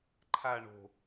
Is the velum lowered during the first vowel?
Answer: no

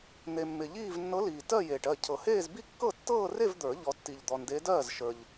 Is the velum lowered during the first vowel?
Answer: no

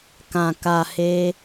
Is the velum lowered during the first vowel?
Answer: yes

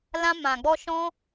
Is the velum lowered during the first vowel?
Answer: yes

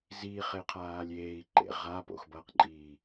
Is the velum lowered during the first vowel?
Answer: no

